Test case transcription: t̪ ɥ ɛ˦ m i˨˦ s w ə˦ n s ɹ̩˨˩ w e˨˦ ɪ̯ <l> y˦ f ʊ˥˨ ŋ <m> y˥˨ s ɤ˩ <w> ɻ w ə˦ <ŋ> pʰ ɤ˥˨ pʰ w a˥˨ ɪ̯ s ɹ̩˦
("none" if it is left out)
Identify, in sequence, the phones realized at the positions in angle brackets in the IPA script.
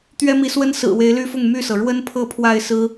l, m, none, n

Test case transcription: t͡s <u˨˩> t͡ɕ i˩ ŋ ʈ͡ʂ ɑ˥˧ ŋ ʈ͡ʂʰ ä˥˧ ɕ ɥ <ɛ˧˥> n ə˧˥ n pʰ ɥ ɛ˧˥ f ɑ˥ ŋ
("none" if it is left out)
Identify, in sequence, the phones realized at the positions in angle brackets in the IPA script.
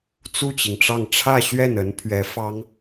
u˥˩, ɛ˥˩

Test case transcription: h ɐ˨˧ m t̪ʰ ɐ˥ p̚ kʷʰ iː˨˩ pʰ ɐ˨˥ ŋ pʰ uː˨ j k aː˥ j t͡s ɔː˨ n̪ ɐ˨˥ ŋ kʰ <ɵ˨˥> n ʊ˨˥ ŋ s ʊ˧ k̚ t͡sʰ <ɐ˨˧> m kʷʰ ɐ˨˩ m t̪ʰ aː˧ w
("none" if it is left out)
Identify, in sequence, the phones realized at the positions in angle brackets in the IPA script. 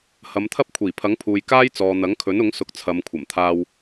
ɵ˨˥, ɐ˨˧

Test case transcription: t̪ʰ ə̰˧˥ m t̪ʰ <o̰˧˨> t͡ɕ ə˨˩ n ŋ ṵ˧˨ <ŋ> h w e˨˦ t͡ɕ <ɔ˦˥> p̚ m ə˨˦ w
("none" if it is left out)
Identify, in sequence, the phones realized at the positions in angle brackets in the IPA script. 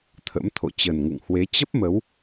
o̰˧˨, ŋ, ə˦˥

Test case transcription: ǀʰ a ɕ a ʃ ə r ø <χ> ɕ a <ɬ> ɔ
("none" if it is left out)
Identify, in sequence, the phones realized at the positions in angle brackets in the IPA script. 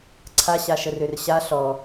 r, ɬ

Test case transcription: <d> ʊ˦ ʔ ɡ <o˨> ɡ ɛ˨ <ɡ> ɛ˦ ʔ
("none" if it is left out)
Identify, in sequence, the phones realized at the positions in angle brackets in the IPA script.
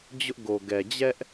d͡ʑ, o˨, d͡ʑ

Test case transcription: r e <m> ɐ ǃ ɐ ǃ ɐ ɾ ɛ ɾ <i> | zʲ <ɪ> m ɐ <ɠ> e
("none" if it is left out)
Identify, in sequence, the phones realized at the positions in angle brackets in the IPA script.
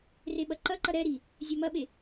ɓ, i, ɛ, ɓ

